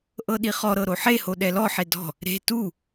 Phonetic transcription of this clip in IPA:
ʔ ɤ ɗ i χ ɔ ɾ ɤ ɾ o ħ e h o ɗ ɛ l ɔ ħ e d ɔ̤ | ɾ e̤ t u

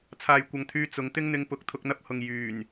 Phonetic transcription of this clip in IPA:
t͡sʰ aː˨ j kʷ ɐ˨ ŋ t̪ʰ yː˧ t͡s ʊ˨˧ ŋ t̪ ɪ˥ ŋ n̪ ɪ˧ ŋ p ʊ˨˥ k̚ t̪ʰ ʊ˧ k̚ n̪ ɐ˥ p̚ h ʊ˨ ŋ j yː˨˩ n

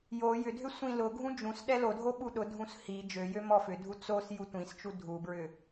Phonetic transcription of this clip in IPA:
j o j ʏ dʱ ʏ sʷ ĩ l ʊ ɡʱ ũ d͡ʒ ũ s ɗ ɛ l o dʱ o ɓ u ɗ ʊ dʱ ũ s h i d͡ʒ ø j ø m ɔ f ʏ dʱ u t͡s o s j u tʷ ĩ s t͡ʃ u dʱ u b ɹ ʏ

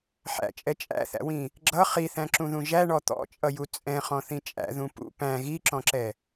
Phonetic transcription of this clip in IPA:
ħ æ̰ t͡ʃʼ ɛ t͡ʃʼ æ̰ θ æ̰ w ĩ | ɡ͡ǁ ʌ χ i θ æ̃ ǁ ũ ð ũ ʒ æ ɳ ɔ t̪ ɔ̰ t͡ʃʼ ʌ j u t͡sʼ ɛ̃ χ ɔ̃ θ ĩ t͡ʃʼ æ̰ ð ũ p ṵ p æ̃ ɣ i ǁ ɔ̃ ǁ ɛ

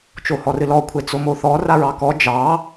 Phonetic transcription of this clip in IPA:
t͡ʃ o h ɔ r ɨ l ɔ kʷʰ e t͡s o m o θ ɔ r a ɹ ɑ k ɔ d͡ʒ ɑ

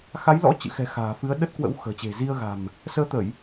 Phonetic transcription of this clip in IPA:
x a˨˦ j l ɔ̰˧˥ t͡ɕ ɨ̰˧˨ x ɛ̤˨˩ x a̤ː˨˩ f ɨ˨˦ ə̯ ɗ ə˦˥ t̚ k w ə̰˧˥ w x ə̤ː˨˩ t͡ɕ e̤˨˩ z i˧ ə̯ ɣ a̤˨˩ m | s əː˨˦ t̪ ə˧˩˨ j

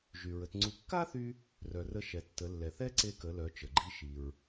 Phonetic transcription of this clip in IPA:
ʒ y˩ ɹ ə˩˧ t ŋ͡ǀ u˧ kː a˥ θ y˧ | r œ˩ r ə˧ ʃ ɛ˩ tː ə˩˧ lː ɛ˩ θ ɛ˥ ǀ e˧ k ə˩˧ l œ˩˧ t͡ʃ ə˩ ɡ͡ǃ i˧ ʃ i˩ ɹ

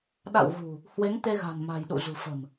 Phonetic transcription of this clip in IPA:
ɗ a̰˧˨ w ɣ ṳ˨˩ | h w e˨˦ ŋ t̪ e˧ ɣ a̤˨˩ n m a̤˨˩ j ɗ ṵ˧˨ z ṳ˨˩ f ə̤˨˩ m

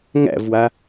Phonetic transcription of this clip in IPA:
ŋ æ̰ v w a

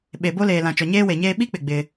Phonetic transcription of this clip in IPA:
ɓ e˨ b o˦ l eː˨ l ã˨ t͡ʃ ɔ˨ ɲ eː˦ w e˨ ɲ eː˦ ɓ i˦ k͡p ɪ˨ ɡ͡b ɪ˦

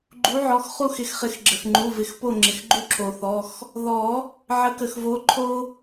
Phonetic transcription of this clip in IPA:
ɡ͡ǃ u˨˦ ʕ ɔ˩˧˩ x χ u˦˨ x ɪ˩˧˩ x χ ɪ˨˩˦ x ɡ͡ǁ ə˩ x ŋ͡ǃ u˩˧˩ v ɪ˨˩˦ x p o˦˨ ŋ͡ǁ ɪ˩ x ɡ͡ǃ u˦ ǁʰ o˩ θ ɔ˩˧˩ x | ð ɔ˨˩˦ | ʕ ə˨˦ k ə˩ x v o˨˦ ǃʰ o˦

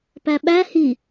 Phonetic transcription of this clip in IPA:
p æ ɓ æ h i

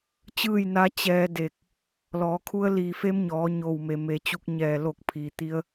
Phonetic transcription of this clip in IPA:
t͡ɕ ɯː˥˨ j n a˧˥ t͡ɕ ɛː˧ d e˧˩ k̚ | l ɔː˩˧ kʰ u˧˥ ə̯ l iː˧˩ f e˧˥ m ɲ ɔː˩˧ ɲ o˧˩ w m e˩ m e˩˧ t͡ɕ u˧ k̚ ɲ ɛː˧˩ l o˧˩ k̚ pʰ iː˩ t̪ i˧ ə̯

